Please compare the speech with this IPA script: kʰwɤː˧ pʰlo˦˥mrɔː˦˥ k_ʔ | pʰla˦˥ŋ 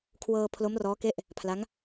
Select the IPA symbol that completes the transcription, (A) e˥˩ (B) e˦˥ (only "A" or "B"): A